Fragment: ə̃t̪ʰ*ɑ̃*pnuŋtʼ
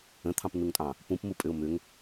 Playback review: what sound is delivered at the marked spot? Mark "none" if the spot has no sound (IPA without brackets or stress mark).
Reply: ɑ̃